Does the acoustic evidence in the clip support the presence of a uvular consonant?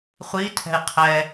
yes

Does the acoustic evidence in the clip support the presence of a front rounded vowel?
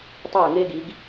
yes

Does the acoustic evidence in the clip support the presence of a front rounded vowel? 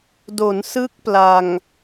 no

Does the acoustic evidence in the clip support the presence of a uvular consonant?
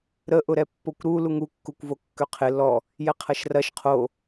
yes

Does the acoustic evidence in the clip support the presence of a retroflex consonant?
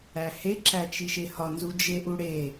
yes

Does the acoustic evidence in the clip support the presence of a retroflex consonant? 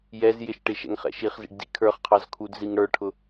yes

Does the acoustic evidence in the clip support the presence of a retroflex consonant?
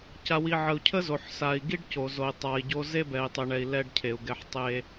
yes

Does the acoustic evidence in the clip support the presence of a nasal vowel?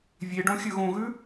yes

